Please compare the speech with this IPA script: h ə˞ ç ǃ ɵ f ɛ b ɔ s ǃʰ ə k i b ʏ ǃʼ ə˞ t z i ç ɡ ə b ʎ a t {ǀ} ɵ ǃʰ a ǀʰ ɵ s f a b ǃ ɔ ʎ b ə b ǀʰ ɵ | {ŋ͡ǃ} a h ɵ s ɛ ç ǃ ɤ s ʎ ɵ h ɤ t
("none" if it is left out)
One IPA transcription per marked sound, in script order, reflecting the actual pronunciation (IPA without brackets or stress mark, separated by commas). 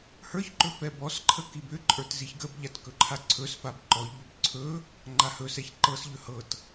k, ŋ͡ǃ